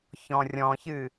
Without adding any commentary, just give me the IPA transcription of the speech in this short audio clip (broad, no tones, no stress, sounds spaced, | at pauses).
ç ɔ̃ rʲ ɔ̃ ç ɨ